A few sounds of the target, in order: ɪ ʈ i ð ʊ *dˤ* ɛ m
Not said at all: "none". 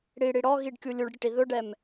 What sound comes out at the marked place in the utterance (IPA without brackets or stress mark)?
ɖ